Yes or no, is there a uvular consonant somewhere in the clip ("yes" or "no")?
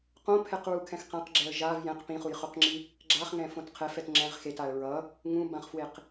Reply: yes